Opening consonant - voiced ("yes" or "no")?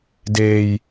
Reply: yes